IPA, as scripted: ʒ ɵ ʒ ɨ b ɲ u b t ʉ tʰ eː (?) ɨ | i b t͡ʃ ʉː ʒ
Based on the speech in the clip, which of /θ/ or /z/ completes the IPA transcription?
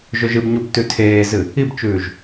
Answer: z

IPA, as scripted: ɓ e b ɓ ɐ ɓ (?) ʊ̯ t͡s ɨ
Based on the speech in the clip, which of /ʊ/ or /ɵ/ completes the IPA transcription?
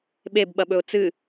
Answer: ɵ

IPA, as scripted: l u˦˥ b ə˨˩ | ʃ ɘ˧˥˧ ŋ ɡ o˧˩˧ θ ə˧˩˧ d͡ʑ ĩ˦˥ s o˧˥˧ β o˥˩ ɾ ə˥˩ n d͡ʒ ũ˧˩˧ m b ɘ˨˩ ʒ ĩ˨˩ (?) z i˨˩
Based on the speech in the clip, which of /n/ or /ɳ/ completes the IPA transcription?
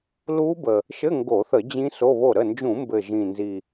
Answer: n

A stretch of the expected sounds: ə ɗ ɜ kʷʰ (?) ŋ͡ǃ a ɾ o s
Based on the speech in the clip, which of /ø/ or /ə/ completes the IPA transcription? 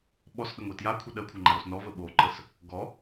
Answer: ə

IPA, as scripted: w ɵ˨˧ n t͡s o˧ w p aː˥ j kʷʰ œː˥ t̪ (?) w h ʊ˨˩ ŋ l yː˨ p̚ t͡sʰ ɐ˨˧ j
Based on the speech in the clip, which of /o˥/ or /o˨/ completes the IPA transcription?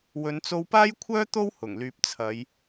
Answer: o˥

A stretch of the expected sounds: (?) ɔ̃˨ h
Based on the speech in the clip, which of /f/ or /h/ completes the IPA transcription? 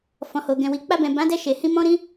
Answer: f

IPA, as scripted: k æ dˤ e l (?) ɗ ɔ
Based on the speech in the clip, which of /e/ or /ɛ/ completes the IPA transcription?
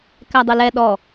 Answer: ɛ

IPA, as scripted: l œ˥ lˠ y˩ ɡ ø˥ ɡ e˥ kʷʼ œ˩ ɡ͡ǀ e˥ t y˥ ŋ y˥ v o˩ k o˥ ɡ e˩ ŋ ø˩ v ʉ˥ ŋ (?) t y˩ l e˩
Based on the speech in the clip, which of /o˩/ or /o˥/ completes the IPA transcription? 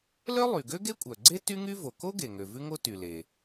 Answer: o˥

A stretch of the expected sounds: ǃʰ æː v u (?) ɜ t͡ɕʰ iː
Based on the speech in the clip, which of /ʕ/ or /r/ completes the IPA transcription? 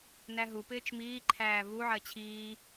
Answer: ʕ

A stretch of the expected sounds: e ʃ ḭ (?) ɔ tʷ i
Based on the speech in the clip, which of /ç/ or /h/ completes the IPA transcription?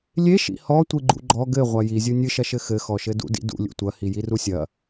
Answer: h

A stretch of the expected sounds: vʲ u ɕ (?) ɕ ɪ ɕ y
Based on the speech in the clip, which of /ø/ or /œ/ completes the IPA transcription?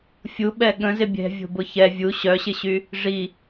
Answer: œ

